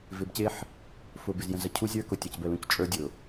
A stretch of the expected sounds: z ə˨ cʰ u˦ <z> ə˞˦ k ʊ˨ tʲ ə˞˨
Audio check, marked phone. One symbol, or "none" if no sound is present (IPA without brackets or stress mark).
zʲ